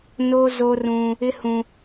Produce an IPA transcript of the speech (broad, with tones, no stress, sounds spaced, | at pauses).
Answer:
n o˦ z o˦ r ũ˦ | ɪ˦ h ũ˦